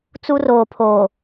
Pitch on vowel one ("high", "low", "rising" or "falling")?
high